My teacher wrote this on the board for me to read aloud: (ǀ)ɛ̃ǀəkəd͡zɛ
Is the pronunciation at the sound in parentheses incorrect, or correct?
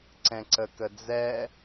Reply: correct